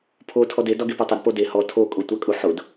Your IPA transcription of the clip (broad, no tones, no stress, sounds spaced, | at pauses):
pʰ o tʰ ɔ d e d ɒ ɡ e p ɒ tˤ ə d p o d e h ɔ tʰ o kʼ ʊ tʷ a kʼ u ħ ʊ d